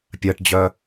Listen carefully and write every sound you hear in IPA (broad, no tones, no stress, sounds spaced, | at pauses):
pʲ ɜ ʈ d͡ʑ œ